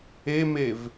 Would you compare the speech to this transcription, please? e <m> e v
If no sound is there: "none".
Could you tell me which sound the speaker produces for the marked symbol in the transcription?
m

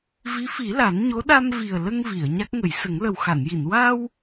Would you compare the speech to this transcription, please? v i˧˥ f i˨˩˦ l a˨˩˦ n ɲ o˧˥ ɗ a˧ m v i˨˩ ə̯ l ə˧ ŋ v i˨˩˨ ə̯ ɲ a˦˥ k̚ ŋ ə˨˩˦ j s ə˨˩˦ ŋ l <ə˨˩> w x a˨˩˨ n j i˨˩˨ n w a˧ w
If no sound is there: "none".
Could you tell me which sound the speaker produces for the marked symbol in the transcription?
ə˨˩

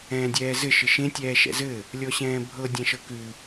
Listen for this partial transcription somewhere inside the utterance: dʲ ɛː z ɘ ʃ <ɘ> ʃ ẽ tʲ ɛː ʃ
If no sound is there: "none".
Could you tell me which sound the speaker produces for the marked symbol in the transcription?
ɘ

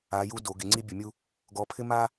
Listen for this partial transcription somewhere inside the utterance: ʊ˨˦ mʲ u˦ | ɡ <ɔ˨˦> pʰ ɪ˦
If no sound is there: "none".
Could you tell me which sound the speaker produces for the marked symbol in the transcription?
ɔ˨˦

